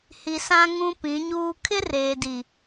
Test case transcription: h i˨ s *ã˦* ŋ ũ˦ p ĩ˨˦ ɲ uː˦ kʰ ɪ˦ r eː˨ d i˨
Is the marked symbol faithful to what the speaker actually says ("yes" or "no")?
yes